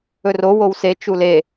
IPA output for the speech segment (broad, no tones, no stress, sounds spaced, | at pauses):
ɵ r o w o w s e t͡ʃ u l e